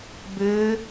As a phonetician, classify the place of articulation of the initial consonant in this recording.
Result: labial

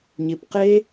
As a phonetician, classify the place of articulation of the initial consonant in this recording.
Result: palatal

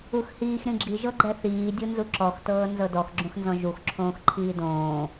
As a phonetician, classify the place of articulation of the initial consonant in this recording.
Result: velar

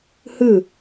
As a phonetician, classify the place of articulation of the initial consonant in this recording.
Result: glottal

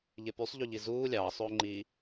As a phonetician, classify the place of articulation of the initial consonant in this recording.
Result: palatal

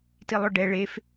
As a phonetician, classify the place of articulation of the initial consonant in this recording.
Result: alveolar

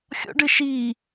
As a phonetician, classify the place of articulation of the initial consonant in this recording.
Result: velar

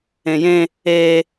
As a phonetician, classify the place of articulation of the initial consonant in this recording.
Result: palatal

